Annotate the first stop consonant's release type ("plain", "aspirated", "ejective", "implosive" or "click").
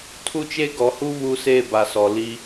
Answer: aspirated